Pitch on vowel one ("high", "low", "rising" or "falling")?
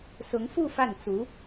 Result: rising